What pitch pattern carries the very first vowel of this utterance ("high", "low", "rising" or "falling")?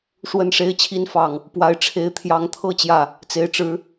falling